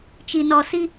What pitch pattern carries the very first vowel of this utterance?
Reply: low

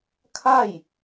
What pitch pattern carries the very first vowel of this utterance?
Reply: falling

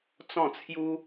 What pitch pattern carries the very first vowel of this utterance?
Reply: falling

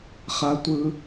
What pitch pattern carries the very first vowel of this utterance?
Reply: low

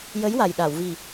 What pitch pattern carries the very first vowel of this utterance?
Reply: rising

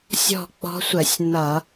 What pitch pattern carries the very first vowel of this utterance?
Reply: falling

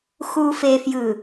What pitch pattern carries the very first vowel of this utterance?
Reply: low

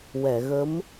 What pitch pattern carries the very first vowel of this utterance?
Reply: low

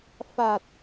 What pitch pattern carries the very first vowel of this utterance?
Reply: low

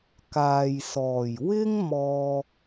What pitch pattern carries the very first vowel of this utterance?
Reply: low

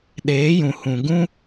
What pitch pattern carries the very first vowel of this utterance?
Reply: rising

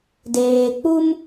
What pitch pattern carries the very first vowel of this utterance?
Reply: low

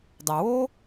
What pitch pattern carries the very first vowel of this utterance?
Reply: low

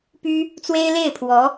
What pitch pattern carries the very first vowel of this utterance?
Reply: high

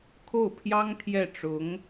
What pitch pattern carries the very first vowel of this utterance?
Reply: falling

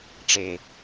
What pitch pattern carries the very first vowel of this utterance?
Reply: falling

